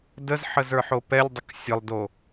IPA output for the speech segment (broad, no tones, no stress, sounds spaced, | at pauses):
d ə z ħ ə z ə˞ ħ o p ɛ lʲ dˤ ə k sʲ ə lˠ d o